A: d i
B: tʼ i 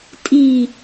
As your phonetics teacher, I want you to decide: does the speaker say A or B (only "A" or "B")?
B